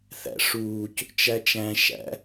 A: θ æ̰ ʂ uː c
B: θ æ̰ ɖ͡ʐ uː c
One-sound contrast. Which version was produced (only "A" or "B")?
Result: A